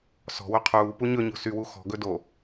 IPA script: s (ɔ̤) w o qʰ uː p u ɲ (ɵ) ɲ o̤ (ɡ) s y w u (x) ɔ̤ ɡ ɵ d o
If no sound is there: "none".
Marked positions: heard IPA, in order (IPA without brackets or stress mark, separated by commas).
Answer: ɔ̤, ɵ, none, x